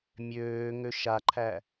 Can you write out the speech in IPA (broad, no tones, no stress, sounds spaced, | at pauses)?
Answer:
mʲ øː ŋ ø ʃ a ǃʰ æ